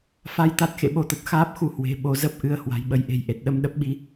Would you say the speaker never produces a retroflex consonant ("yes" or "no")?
yes